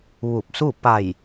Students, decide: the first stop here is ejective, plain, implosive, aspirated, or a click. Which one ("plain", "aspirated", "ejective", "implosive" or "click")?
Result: plain